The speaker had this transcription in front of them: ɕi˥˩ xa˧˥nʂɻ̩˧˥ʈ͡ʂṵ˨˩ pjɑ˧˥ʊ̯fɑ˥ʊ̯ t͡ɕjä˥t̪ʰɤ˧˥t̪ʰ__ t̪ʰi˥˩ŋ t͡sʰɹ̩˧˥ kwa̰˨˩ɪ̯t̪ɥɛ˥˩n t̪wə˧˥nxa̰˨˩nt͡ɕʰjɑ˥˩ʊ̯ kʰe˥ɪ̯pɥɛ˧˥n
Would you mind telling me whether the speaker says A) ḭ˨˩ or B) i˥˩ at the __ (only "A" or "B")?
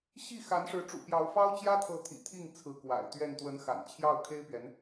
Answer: A